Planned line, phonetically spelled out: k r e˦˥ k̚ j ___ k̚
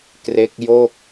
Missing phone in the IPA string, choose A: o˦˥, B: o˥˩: B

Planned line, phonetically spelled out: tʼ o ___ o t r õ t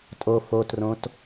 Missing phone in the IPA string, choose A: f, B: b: A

